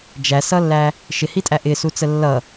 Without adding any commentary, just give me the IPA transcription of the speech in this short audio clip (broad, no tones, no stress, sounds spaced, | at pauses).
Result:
d͡ʒ æ s ʌ lː æ | ʃ ɪ h i tʼ æ ʔ ɪ s u t͡s ə lː ʌ